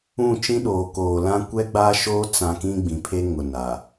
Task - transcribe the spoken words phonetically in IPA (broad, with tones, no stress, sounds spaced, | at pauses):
ũ˦˨ t͡ʃ ĩ˦ ɗ oː˨ k oː˨ l ã˦ kʷ ɛ˦ ɡ͡b aː˦ ʃ oː˦ t͡s ã˦ k ĩ˦ ɡ͡b ĩ˨ pʰ e˦ ŋ ʊ˨ n a˨